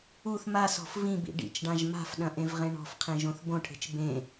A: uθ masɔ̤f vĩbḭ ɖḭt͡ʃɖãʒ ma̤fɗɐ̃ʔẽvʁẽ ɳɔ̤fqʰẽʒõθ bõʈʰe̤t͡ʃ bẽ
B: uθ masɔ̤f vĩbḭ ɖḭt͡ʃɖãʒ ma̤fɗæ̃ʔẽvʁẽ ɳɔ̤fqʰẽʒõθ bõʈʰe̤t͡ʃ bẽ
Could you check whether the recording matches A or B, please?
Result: A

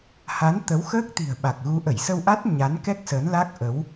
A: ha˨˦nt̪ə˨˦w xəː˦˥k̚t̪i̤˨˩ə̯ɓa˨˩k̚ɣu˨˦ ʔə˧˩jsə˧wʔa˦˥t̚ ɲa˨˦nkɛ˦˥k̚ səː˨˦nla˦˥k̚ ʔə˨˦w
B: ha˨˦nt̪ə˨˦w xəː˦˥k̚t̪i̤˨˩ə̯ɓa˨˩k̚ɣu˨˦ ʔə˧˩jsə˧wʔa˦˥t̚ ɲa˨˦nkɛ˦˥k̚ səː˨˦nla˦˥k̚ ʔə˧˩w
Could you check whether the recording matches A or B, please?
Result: A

